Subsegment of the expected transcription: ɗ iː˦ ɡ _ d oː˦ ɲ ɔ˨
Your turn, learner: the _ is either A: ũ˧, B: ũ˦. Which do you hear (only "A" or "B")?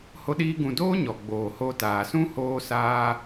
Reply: A